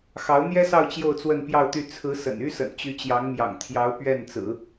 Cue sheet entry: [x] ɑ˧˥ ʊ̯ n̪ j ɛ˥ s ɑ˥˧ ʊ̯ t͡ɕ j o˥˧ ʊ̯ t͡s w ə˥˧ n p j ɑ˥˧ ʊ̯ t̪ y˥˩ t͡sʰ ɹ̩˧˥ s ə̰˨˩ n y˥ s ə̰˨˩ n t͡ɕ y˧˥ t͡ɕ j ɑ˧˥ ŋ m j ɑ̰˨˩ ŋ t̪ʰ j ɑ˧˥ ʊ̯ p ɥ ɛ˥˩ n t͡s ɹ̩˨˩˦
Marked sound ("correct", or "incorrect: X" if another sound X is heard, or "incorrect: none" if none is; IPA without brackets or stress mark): correct